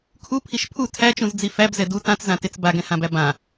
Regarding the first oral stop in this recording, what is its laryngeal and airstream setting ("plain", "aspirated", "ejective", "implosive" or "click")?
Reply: aspirated